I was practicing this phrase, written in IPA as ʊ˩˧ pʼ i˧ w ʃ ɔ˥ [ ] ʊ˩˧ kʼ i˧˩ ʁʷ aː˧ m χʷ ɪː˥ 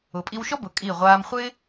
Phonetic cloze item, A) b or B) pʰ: A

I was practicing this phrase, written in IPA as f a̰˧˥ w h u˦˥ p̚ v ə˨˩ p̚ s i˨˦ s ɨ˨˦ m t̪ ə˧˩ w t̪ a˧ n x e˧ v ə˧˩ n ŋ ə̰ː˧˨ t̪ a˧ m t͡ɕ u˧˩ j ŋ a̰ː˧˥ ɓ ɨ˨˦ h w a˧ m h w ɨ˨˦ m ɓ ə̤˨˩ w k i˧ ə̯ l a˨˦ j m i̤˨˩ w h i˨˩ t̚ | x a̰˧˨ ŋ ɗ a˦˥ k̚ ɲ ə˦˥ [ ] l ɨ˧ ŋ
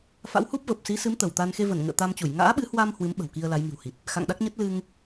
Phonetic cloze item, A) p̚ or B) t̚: B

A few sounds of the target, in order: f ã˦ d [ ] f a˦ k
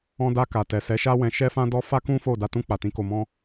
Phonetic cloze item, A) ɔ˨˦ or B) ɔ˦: B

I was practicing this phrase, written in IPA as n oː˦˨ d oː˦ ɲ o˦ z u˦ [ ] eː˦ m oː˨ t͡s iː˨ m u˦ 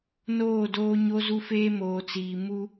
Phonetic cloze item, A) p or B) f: B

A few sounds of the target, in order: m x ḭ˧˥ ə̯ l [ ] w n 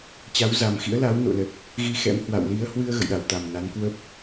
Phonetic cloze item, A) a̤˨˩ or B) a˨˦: B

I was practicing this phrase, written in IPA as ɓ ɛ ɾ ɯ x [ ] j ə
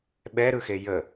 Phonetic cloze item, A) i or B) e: B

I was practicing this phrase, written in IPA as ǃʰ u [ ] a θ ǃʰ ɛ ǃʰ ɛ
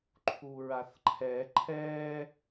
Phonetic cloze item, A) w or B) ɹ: B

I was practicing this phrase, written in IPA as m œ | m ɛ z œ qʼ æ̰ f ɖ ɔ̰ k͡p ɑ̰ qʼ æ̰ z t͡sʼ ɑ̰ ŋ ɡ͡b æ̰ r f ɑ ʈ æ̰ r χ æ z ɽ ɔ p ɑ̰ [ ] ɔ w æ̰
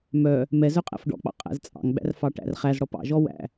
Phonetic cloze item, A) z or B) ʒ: B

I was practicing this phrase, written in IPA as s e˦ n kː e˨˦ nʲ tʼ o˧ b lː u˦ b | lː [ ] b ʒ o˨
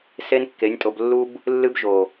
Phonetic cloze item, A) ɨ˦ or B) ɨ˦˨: A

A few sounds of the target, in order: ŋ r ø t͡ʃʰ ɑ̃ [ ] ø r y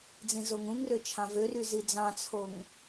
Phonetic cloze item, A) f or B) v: B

